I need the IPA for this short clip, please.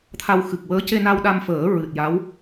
t̪ʰ a˧ w x ɨ˨˩ k̚ w əː˧˥ c e˧ n a˧ w ɗ a˧ m f əː˨˩˦ ɹ ɨ˨˩ t̚ j a˧˥ w

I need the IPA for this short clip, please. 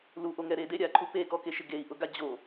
l u ʔ o ŋ ɛ ɾ e d e ɾʲ a ǃʰ u p e k ɔ k e ʃ ɪ ɡ e i̯ ʔ ʊ ɡ a d͡ʑ o

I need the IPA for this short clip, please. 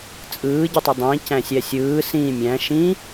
t͡sʼ ɯː ɟ i tˤ ø dˤ ĩː c æ̃ sʲ æ sʲ ɯː s ĩ mʲ æ̃ ʃ ĩ

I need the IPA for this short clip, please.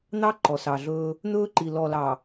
n̪ ɑ˦ ǃ ɔ˨ s ɑ˨ ɮ ɵː˦ | n̪ ɵː˦ ǃ i˨ l ɔ˨ l ɑ˨

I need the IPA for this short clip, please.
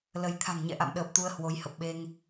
l ə˧ j t̪ʰ a̤˨˩ ŋ ɲ ɛ̰˧˨ ʔ a̰˧˨ m ɗ əː˨˩ p̚ t̪ u˧ ə̯ h w o˨˦ j h ə˨˩ p̚ ɓ e˧ ŋ

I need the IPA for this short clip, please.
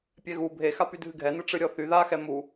pʲ ɛ ɣ u bʱ e x a p y dʱ ɨ ɡʱ ɛ n ɨ ʈ͡ʂ ɨ ɾʲ ɔ θ y ð a x ɛ m u

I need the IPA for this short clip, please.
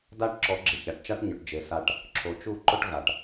d a˦ ʈ ǁ ɔ˨˦ ɡ͡ǁ ɪ˨ ç a˨ ʈ t͡ʃ a˦ ʈ ɲ ʊ˨ ʈ d͡ʒ e˨ s a˧ ʈ | ǁʰ o˨ t͡ʃ u˦˨ ǃ ʊ˦ ʈ ɣ a˨ ʈ

